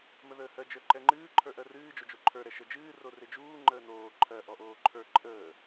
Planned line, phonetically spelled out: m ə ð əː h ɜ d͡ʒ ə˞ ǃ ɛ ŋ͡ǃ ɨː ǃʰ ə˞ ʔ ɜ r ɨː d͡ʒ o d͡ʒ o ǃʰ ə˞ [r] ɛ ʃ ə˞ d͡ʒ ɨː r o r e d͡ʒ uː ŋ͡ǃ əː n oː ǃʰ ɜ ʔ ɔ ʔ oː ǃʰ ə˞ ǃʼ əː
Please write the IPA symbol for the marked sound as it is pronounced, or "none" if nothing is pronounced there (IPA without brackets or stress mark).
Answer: ɾ